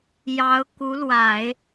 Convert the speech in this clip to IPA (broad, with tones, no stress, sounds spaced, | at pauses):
j ɑ˧˥ ʊ̯ k u˧˥ l w a˨˩˦ ɪ̯